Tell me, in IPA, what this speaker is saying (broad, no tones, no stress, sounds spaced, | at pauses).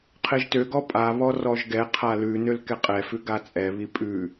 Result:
qʰ e ʒ t ø ɡ ɔ pʼ a β ɔ r ɔ ʒ ɡ ɛ qʰ a l ʉ n ø l k ɛ qʼ ɛ f ʉ ɡ a t͡sʼ ɛ β i pʼ ʉ